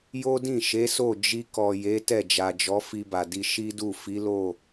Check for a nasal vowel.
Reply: present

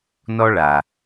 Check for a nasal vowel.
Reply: absent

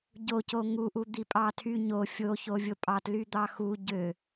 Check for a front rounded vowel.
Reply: present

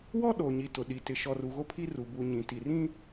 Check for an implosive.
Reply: present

